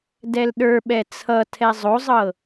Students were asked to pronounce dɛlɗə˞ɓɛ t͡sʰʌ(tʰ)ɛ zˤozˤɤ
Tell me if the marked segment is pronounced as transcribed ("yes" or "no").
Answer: yes